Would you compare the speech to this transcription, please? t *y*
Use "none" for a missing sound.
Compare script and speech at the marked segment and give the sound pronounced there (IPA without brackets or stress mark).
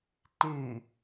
y